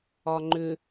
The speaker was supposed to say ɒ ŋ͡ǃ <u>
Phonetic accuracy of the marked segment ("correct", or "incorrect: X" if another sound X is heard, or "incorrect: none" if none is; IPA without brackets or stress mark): incorrect: ʏ